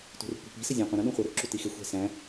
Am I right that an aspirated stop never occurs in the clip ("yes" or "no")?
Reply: yes